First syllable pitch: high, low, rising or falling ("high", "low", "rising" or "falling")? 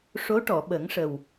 rising